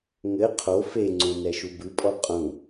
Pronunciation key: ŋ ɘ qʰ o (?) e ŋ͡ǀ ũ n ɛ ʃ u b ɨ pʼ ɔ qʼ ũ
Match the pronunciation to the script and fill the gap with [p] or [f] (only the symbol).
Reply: f